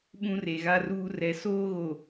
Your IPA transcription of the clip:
ɓ ũ˦ r e˨ ɣ a˦ r uː˦ r ɛ˨ s oː˦ ɣ o˨

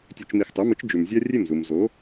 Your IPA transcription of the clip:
tʲ ʉ˧ t͡ʃ m i˧ x tˤ ʉ˩˥ m ɨ˩˥ t͡ʃ d͡ʒ ʉ˩ m zʲ a˥ rʲ e˥˩ m z u˩ m z o˩˥

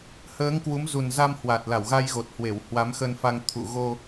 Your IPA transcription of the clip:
h əː˨˦ ŋ k w u˨˦ m z u˨˩ n z a˧ m h w a˨˩ t̚ l a˧˩ w ɣ a˧ j ɣ o˨˩ t̚ h w e˧˩ w h w a˨˦ m x ə˧ n f a˧ ŋ t̪ʰ ṵ˧˨ ɣ o˧

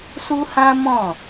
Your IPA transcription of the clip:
s u˦ h ã˦ m ɔ̃˦˨

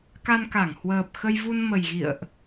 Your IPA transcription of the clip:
k a˧ n k a˧˩ ŋ h w əː˨˩ p̚ x ə˧ j v u˧ n m ə˨˩ j ɣ ḭ˧˨ ə̯ ʔ

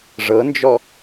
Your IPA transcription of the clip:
ʐ ɤ n d͡ʒ ɔ

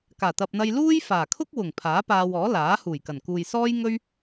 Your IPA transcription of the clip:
k aː˨˩ t̪ ɐ˨ p̚ n̪ ɐ˧ j l uː˥ j f aː˨˩ kʰ ʊ˥ k̚ w ʊ˨˩ ŋ pʰ aː˨˥ p aː˧ w ɔː˨˥ l aː˨˥ h uː˨˩ j k ɐ˨˩ n k uː˨ j s ɔː˥ j ŋ ɵ˥ ɥ

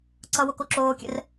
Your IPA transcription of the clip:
ǀ ʌ w o k o ǁ oː kʲ ɛ̰ r

